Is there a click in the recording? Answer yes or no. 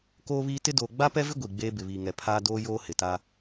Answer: no